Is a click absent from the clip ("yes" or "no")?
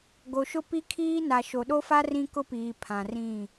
yes